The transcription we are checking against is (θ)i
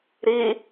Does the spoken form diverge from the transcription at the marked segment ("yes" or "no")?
yes